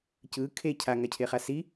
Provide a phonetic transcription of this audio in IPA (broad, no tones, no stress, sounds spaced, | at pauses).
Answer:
c ɯ kʰ e cʰ a ŋ a cʰ e χ a s i